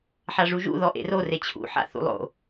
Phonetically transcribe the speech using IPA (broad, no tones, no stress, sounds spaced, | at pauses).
ħ a ʐ u ʒ ṵ ð ɔ ʔ ḛ r o r e t͡ɕʰ ṵ ħ a̰ θ ṵ lˠ o̰